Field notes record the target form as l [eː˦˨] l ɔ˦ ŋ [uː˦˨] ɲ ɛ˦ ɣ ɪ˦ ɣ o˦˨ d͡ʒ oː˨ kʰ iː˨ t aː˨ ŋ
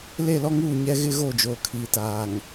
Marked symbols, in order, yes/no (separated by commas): no, yes